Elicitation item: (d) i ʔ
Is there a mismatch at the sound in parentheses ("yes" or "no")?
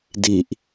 no